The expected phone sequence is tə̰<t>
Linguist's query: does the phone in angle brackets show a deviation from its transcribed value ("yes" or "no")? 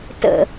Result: yes